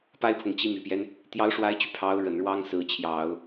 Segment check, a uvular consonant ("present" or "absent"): absent